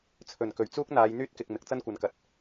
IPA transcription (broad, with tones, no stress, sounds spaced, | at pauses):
t͡sʰ ɵ˨˩ n k ɵ˨˩ ɥ t͡s uː˥ k̚ n̪ aː˨˧ j n̪ yː˥ t̚ k ɪ˨ k̚ m ɪ˨˥ k̚ t͡s ɐ˥ n kʷ ɐ˨ n k ɐ˨˥ t̚